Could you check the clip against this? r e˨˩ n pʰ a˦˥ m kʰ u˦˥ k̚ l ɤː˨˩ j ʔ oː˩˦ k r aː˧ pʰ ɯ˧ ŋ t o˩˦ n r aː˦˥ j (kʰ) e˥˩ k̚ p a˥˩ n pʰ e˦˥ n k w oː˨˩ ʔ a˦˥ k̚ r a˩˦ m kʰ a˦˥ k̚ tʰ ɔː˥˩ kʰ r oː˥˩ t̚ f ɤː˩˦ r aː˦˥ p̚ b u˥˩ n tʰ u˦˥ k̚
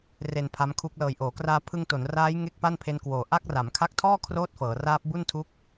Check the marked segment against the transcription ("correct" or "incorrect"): incorrect